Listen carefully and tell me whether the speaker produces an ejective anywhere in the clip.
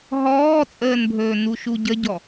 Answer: yes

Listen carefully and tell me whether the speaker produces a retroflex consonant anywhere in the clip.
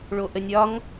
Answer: yes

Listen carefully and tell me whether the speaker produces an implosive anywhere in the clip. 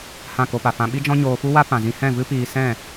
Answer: yes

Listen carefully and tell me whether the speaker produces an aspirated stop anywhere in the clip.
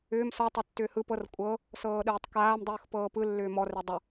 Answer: no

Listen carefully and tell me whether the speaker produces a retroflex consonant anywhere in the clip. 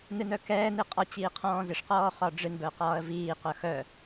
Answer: yes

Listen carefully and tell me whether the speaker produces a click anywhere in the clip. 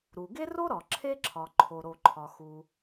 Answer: yes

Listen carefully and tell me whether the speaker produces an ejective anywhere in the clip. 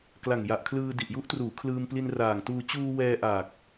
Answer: no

